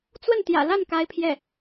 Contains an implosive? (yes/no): no